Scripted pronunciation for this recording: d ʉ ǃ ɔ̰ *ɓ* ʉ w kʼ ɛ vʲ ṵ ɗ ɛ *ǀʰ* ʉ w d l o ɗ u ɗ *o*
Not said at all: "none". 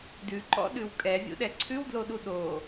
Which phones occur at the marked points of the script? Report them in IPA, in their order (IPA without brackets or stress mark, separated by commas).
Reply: ɗ, ǀʰ, o